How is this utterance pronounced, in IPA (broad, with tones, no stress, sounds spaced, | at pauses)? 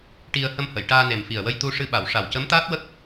ʈ i˧ ə̯ h ə˧ m h ə˨˩˨ j ʈ aː˧ n e˨˩ m f i˨˩ ə̯ w ə˧ j t̪ u˧ ʂ ɨ˧ ɓ a˨˩˨ w ʂ a˨˩ w c ə˧˥ m t̪ aː˦˥ t̚ w ə˦˥ k̚